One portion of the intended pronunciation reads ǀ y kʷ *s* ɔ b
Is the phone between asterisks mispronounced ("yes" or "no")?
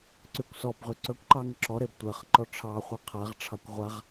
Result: no